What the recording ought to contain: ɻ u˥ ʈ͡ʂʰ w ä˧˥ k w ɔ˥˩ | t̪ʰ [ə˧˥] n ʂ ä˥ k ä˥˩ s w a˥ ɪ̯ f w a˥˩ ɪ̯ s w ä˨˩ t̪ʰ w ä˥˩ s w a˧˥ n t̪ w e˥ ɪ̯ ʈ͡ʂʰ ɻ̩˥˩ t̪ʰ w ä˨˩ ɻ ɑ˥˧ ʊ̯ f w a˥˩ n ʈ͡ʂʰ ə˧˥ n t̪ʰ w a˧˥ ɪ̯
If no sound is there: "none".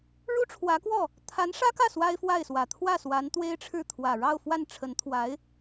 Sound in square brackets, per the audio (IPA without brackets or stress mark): a˧˥